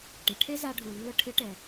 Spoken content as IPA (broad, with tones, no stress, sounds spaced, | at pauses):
ʈ ɪ˩ ʈʰ e˥ z a˧ ɖʱ u˩ lː ʊ˧ ʈʰ ɪ˧˥ ʈ ɛ˩